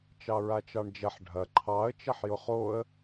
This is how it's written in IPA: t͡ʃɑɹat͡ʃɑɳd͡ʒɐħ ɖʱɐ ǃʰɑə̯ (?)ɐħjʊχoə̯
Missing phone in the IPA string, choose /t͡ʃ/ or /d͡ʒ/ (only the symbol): t͡ʃ